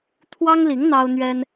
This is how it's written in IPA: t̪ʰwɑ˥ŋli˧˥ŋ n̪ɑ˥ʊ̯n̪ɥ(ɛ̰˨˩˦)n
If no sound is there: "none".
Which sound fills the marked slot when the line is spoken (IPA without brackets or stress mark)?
ɛ˥